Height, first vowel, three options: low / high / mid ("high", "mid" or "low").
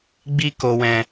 high